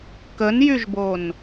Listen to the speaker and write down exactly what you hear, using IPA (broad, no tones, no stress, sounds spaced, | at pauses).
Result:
k ə n j y ʒ b o n